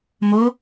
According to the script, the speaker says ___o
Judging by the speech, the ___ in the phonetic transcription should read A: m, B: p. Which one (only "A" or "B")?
A